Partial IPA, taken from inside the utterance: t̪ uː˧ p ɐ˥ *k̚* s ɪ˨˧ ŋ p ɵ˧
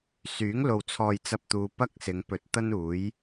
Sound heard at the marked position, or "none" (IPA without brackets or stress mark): k̚